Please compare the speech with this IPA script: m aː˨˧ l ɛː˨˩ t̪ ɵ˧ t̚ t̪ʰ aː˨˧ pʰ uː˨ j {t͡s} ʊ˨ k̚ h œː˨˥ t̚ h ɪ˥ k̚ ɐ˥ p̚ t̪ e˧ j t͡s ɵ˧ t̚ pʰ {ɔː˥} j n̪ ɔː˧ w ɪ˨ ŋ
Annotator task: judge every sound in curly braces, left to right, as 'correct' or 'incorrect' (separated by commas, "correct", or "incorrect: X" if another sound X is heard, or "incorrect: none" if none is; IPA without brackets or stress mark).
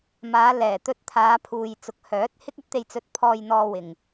correct, incorrect: ɔː˧